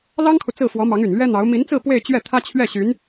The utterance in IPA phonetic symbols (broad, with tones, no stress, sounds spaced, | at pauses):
l ɑ˥ ŋ kʰ u˨ t͡s ɹ̩˥˩ f w ɔ˧˥ m ɑ˧˥ ŋ y˨˩ n l ɥ ɛ˥ n̪ ɑ˧˥ ʊ̯ m i˧˥ n t͡s ɹ̩˥˧ p w e˥˧ ɪ̯ t͡ɕ ɥ ɛ˥˩ t̪ʰ ä˥ t͡ɕʰ ɥ ɛ˥˩ ɕ y˧˥ n